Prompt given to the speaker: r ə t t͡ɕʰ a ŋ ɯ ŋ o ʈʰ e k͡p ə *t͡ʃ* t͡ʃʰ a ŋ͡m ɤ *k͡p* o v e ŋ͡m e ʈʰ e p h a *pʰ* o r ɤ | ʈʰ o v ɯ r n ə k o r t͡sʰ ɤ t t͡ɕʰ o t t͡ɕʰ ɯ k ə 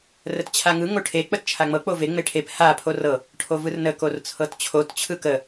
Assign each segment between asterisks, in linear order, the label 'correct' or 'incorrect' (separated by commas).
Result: incorrect, correct, correct